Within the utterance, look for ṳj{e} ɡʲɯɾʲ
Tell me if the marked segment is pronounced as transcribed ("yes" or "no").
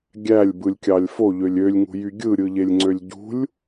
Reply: no